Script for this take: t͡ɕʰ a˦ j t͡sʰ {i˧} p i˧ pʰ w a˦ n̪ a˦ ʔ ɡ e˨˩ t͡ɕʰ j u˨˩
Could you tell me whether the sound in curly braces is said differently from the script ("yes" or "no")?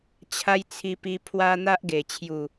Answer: no